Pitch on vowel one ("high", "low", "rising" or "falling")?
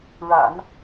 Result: low